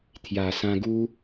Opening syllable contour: low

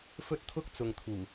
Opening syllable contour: high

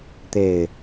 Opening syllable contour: low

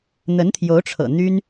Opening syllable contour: rising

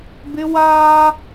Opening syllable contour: high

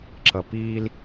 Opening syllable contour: low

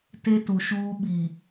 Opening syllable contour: high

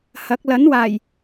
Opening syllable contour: rising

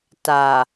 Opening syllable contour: low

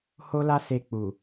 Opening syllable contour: high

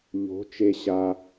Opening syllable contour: rising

